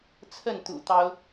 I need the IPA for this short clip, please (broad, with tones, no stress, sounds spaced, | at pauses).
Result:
t͡sʰ ə˥˨ n t̪ ṵ˨˩ t̪ ɑ˦ ʊ̯